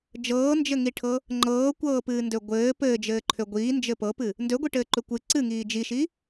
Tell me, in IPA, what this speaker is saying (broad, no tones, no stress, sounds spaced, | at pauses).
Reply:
d͡ʒ ɤː n d͡ʒ ɘ ŋ i ʈʰ ɤ | ŋ͡ǃ ɤː kʷ ɤː p ɨː n d ø ɡʷ ɘː p ɘː d͡ʒ ɘː ǃʰ ø ɡʷ iː n d͡ʒ ɘ p ɤ p ɨ | n d ø ɡʷ i ʈ ɘː ǃ ø kʷ ɨ ǀ ɨ ŋ iː d͡ʒ i ʃ i